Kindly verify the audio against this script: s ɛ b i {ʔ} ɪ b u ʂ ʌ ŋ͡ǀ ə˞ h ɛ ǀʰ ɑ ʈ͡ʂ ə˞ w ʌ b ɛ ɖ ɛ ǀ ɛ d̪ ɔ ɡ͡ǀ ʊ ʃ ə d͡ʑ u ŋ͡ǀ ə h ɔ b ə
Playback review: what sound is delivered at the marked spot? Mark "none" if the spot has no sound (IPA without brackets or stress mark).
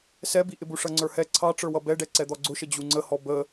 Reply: ʔ